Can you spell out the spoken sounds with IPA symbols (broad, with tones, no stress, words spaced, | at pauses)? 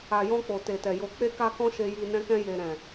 a˨jɔ̃˧ k͡po˨te˨tɛ˨ jo˨k͡pe˧ka˧ kɔ̃˦ʃe˧ji˧ nɛ̃˧kɛ̃˧je˨ ɾɛ̃˨